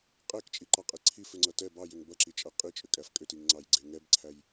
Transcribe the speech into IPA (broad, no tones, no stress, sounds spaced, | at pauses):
qʼ ɛ k t͡ʃʼ i ǃ ɑ qʼ e ǀʰ i f ʏ ŋ͡ǀ ʌ t ɛ b ɑ j ʏ ŋ b ʌ ǁ i t͡ʃʼ ʌ qʼ i t͡ʃʼ ʏ kʼ æ f kʼ ʏ t i ŋ ŋ͡ǀ ɑ j ɡ͡ǀ e ŋ ɛ b ǀʰ æ j